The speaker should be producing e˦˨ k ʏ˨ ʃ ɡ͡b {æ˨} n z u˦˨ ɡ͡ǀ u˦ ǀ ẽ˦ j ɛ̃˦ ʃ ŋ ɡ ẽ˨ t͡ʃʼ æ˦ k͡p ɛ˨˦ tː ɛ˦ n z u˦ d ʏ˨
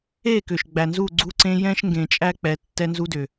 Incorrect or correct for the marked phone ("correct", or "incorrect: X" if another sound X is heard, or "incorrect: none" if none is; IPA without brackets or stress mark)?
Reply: correct